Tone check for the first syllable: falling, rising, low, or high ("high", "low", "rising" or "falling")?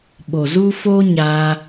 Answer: low